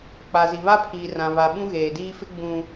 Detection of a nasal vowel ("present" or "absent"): present